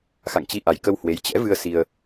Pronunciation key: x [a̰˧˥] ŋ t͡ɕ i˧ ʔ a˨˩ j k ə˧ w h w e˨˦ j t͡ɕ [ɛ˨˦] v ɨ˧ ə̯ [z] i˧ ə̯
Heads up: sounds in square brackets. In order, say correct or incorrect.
incorrect, incorrect, incorrect

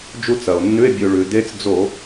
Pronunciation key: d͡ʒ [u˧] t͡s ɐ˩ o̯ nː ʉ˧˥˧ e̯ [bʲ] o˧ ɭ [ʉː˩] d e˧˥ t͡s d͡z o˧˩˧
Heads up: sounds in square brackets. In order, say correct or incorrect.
correct, correct, incorrect

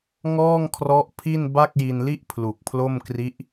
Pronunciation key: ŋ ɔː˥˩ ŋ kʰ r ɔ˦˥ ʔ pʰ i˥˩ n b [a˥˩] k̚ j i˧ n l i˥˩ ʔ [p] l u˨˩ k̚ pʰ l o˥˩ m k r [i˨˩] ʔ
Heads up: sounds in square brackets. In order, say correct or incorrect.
correct, incorrect, incorrect

